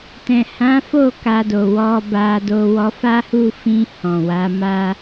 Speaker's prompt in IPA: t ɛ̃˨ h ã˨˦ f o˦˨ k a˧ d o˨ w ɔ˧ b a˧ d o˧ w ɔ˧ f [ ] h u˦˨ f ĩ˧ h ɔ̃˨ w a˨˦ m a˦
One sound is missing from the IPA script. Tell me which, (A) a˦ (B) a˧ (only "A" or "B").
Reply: A